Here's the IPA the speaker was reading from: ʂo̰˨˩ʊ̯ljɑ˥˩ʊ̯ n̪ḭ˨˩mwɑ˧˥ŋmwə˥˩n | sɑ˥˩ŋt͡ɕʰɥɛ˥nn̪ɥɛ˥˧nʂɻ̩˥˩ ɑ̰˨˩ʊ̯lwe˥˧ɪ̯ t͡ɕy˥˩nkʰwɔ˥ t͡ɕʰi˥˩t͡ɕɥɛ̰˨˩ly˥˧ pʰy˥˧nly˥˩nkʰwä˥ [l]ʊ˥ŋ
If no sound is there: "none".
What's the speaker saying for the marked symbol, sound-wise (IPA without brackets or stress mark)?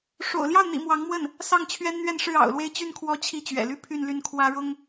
ɻ